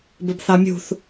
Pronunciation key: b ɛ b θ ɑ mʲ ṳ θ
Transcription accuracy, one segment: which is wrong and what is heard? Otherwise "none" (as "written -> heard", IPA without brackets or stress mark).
ɛ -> ɘ